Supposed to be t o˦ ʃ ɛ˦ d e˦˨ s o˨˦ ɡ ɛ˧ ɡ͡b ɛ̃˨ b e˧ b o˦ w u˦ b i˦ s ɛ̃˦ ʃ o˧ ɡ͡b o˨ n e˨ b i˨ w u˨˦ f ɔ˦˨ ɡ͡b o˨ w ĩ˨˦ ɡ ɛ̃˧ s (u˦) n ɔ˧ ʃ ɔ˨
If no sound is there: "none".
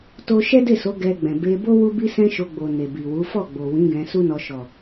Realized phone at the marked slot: u˦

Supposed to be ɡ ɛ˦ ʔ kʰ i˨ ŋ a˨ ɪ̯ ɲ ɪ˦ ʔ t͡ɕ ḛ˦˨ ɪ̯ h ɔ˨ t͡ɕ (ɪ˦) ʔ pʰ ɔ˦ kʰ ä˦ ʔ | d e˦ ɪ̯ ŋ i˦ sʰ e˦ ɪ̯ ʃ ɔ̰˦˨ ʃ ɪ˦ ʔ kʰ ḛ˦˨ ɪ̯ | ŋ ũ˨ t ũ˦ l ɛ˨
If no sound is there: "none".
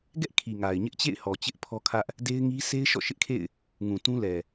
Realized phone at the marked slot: ɪ˦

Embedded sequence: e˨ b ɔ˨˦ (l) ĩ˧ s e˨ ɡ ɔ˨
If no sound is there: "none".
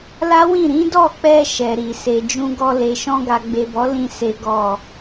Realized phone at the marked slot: l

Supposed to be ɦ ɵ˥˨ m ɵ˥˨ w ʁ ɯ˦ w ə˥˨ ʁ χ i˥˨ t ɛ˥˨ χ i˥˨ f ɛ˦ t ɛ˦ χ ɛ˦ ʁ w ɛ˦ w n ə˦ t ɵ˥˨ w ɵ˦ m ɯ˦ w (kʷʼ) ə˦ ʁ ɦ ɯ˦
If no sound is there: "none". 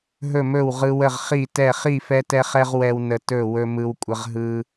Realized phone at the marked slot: kʷʼ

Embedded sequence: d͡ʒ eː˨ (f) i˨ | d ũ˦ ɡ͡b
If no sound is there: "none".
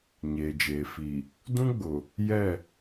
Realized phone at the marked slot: f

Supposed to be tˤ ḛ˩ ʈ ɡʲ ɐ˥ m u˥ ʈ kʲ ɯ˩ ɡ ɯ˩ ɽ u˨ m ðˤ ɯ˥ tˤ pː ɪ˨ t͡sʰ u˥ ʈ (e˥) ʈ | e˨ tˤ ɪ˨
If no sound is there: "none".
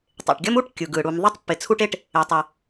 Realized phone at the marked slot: e˥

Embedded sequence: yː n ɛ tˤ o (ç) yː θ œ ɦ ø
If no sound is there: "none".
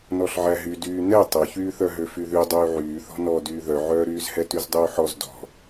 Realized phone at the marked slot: ç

